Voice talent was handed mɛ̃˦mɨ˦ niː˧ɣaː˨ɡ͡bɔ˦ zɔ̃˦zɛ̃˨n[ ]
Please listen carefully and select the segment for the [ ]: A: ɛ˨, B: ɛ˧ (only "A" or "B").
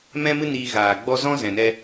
B